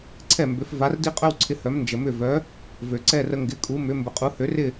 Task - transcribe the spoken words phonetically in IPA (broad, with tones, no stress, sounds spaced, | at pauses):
ǀʰ ɛ˥˩ m b ʏ˩˥ f v a˩˥ r d i˥ qʼ œ˥ w ǀʰ ɪ˩˥ h œ˩˥ m n d͡ʒ ə˩ m ʏ˥˩ v œ˩˥ | v ø˩ ǀ ɛ˥˩ r ə˧ ŋ ɡ ɪ˩˥ kʼ u˩˥ m ʏ˩˥ m b ə˩ qʼ u˩˥ h ø˩˥ r ɪ˥˩